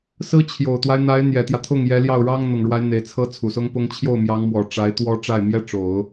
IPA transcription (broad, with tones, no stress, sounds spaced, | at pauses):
s ɹ̩˥ t͡ɕʰ j o˨˩ ʊ̯ t̪ w a˦ ɪ̯ n̪ a˧˥ ɪ̯ n̪ j ɛ˨˩ t̪ j ä˦ t̪ʰ ʊ˥˩ ŋ j ɛ˧˥ l j ɑ˥˩ ʊ̯ ɻ ɑ˥ ŋ n̪ ʊ˨˩ ŋ ɻ w a˧˥ ɪ̯ n̪ e˨˩ ɪ̯ t͡sʰ ɤ˥ t͡sʰ u˨˩ s ʊ˥ ŋ p ʊ˥ ŋ t͡ɕʰ j o˥˩ ʊ̯ m j ɑ˧˥ ŋ m w ɔ˨˩ ʈ͡ʂ a˧˥ ɪ̯ t̪ w ɔ˥ ʈ͡ʂ a˥˩ ɪ̯ m j ɛ˥ ʈ͡ʂ o˨˩˦ ʊ̯